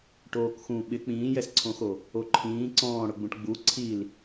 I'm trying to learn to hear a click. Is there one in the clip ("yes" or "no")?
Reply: yes